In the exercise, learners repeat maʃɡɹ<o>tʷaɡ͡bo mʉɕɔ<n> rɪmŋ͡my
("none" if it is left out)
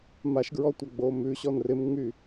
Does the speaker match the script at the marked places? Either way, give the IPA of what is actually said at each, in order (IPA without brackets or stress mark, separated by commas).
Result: ɔ, n